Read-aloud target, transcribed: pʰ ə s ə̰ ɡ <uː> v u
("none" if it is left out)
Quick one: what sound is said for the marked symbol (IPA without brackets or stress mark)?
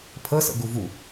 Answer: u